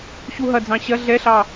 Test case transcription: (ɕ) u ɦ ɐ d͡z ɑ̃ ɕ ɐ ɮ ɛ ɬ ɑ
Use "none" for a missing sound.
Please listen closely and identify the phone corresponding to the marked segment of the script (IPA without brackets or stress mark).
ɕ